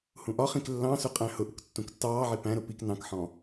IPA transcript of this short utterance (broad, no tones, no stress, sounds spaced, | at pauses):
h ũ ʔ ɒ χ ĩ k lː ɑ̃ s ʊ qʼ æ̃ h ʊ ʔ ʊ k tː ũ k tː ɑː ʕ i p æ̃ ɾ ʊ p i k n ɑ̃ k ħ ɔ̃